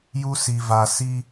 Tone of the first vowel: high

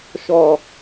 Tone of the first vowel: low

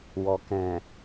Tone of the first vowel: low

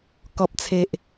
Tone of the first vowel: low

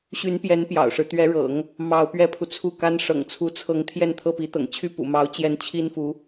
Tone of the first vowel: rising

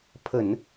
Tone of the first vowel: low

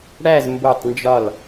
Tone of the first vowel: falling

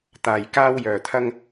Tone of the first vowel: low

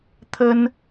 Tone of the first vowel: high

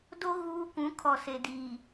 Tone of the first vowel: high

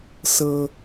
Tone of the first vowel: high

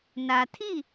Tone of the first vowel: low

